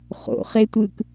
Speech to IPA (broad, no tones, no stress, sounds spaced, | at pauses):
χ o̰ χ e tʷ ɯ k